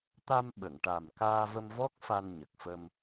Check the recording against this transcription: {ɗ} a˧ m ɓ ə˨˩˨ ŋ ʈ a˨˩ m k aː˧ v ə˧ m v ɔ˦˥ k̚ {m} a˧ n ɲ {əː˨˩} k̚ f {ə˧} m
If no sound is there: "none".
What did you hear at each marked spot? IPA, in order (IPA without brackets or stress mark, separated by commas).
t̪, f, ə˨˩, ə˧